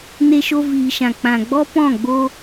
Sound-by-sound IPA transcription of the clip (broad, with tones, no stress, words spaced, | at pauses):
ne˧ʃo˧viː˨ʃã˨ k͡pã˨ɡ͡bɔ˦ pɔ̃˦˨ ɡ͡bo˦